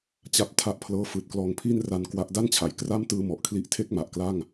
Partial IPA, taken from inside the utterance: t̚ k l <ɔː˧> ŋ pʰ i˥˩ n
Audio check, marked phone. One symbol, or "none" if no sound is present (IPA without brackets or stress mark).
ɔː˧